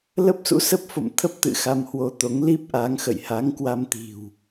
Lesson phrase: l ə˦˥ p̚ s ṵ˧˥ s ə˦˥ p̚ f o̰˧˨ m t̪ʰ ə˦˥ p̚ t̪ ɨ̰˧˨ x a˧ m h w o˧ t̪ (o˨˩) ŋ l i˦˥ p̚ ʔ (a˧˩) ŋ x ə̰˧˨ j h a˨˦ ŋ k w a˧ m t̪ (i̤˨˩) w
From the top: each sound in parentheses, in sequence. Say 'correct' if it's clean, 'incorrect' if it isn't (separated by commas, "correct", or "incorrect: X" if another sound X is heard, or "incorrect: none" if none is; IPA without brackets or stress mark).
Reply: incorrect: o˨˦, incorrect: a˨˦, correct